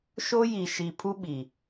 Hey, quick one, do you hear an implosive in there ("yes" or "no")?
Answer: yes